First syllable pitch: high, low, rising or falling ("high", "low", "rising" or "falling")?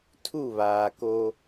falling